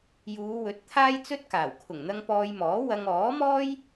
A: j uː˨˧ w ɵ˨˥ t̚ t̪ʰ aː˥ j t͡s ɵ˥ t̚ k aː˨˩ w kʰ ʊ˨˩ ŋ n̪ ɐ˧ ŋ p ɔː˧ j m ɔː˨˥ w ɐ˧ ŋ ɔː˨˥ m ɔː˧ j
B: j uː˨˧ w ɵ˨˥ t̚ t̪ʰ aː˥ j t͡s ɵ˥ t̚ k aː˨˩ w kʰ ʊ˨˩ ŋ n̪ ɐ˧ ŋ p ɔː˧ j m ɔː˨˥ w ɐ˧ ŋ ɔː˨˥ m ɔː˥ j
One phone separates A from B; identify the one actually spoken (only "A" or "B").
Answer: B